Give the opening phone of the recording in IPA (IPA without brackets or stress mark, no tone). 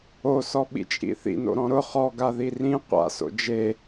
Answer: o